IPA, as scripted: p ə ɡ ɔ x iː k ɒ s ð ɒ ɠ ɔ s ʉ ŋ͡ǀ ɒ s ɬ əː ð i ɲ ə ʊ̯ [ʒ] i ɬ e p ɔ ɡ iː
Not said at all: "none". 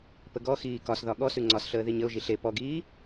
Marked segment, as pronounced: ʒ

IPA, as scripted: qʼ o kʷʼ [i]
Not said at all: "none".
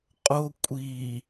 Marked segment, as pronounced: i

